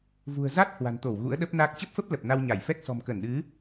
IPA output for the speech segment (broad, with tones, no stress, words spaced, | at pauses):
vṳ˨˩ə̯za˦˥t̚ hwa̤˨˩nt̪o˧˩w ɣṵ˧˥ə̯ɗə˦˥p̚ na˦˥k̚ t͡ɕə˦˥p̚fə˦˥p̚ lə˨˩p̚na˧wɲa˧˩j fɛ˦˥k̚ sɔ̤˨˩mkə˧˩nɗɨ˨˦